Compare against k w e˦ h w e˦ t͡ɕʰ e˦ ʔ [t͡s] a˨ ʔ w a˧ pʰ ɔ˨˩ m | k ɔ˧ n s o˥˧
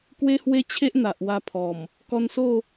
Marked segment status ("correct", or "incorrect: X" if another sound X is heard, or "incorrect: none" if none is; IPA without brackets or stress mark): incorrect: n̪